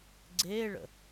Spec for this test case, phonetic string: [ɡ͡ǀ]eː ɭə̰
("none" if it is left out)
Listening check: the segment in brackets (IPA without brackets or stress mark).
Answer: ɡ͡ǀ